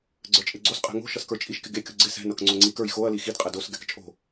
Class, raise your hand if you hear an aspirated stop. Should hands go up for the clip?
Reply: no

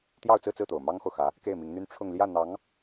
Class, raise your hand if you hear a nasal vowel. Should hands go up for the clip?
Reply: no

